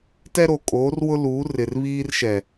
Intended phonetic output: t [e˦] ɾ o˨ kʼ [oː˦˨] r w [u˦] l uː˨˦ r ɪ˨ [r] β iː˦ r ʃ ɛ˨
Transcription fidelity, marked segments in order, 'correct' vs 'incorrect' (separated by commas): incorrect, incorrect, incorrect, correct